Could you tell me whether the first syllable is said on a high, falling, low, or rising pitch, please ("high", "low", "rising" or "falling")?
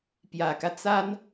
low